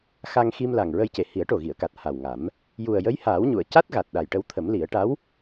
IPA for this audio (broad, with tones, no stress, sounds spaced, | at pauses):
x a˧ ŋ x i˧ m l a˨˩ ŋ ɹ ə˧ j c e˨˩ h i˨˩˦ ə̯ ʈ o˨˩ ɣ i˨˩˨ ə̯ k a˨˩ t̚ h a˨˩ w ŋ a˨˩˦ m | j u˨˩ ə̯ j ə˧˥ j h aː˨˩˦ w ɲ u˨˩˨ ə̯ c a˦˥ t̚ ɣ a˨˩ t̚ ɗ a˨˩ j ʈ ə˧ w t̪ʰ ə˨˩˦ m l i˨˩˦ ə̯ ʈ a˧˥ w